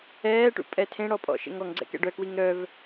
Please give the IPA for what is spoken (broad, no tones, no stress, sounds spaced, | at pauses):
ɛː ʈ ṵ pʼ ɛ tʰ ẽ ɽ ɔ pʼ ɔ̰ ʃ ḛ ŋ ɔ ŋ ɡ͡ǀ ɛ̰ k ɛ̰ ɖ œ k w i ŋ ɾ œ v